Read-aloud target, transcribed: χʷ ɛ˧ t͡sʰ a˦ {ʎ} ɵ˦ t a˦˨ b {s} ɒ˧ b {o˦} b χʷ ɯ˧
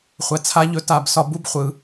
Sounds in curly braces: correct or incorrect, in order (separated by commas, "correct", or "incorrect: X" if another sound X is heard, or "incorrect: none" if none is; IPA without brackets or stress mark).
correct, correct, incorrect: u˦